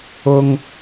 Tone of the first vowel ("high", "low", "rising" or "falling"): high